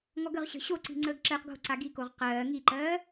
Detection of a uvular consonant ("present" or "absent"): present